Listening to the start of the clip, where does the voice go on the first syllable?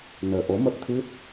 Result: low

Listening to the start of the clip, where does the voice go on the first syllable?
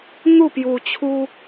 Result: falling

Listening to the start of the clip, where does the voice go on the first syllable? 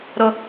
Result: low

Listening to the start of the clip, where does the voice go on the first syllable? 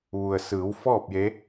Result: low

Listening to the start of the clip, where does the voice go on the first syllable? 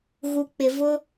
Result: low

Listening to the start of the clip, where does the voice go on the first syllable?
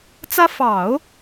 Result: high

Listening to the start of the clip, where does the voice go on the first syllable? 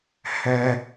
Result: high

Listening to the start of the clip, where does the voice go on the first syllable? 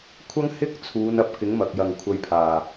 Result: high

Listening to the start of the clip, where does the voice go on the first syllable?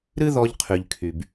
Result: high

